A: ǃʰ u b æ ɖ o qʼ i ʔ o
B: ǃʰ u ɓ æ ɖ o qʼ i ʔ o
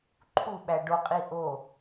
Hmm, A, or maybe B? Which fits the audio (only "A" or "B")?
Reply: B